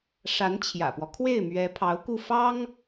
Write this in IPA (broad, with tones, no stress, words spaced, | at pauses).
ʂa˧˥nt͡ɕʰjä̰˨˩pwɔ˦ kʰwe˥˩ɪ̯mɥɛ˧˥ pʰɑ˧˥ʊ̯ku˥˩ fɑ˥ŋ